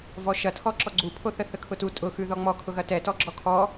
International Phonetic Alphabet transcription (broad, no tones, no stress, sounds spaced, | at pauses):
v ɔ ʃ ɐ tʰ ɔ ǁ ɔ ɡ͡ǀ u pʰ o θ ə θ ə kʰ ʊ t u tʼ ʊ x ʉ ð ɔ ŋ͡m ɔ kʰ ʊ ɣ ɐ t ɛ t ɔ ɡ͡ǁ ɔ kʰ ɔ